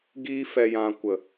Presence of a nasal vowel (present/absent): present